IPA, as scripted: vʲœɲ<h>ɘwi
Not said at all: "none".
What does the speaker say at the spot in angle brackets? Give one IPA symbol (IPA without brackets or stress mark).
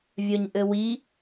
ʔ